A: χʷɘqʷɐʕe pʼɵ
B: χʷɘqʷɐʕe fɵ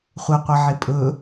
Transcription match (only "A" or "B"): A